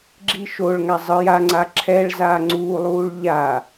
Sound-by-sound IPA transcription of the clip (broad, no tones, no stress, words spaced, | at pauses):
ɡ͡ǁiʃoɭŋa zˤɯj aŋ͡ǀa ǁʰɛɭ zaːŋ͡ǀuːlˠuːɭ ʎa